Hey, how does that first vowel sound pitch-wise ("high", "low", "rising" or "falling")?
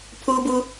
high